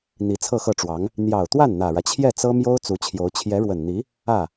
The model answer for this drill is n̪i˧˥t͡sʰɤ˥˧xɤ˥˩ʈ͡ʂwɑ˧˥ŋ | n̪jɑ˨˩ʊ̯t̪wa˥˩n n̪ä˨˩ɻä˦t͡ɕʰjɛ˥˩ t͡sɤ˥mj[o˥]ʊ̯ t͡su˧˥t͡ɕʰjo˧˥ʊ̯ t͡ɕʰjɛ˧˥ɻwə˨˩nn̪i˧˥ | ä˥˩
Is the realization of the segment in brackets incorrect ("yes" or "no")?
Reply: no